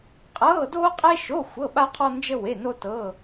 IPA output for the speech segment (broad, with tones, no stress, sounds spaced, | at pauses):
qʼ ɤː˧˥˧ d oː˥ qʼ e˥ ʃ o˧˥˧ xʷ ɤ˧˥˧ ɓ a˥ qʰ ɔ˥ n d͡ʒ ə˥ w e˧˥˧ n o˥ t ɤː˧˥˧